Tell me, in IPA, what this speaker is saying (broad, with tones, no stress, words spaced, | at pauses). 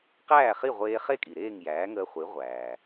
qæː˥˩χi˥˩ ʁʷeː˧ χe˥kʼi˩ɾeː˥˩ŋ jæː˩˥ŋəː˧χʷi˩˥ ʁʷæː˩